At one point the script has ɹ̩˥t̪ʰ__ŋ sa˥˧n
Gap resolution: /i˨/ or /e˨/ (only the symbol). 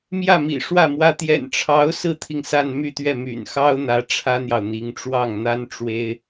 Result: i˨